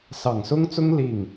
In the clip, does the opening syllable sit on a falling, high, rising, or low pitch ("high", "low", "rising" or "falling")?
low